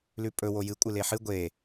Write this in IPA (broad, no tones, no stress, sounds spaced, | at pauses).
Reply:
l ʉ pʼ ɵ w o j ɨ kʷʼ ɨ l e ħ ɨ ɡʷ e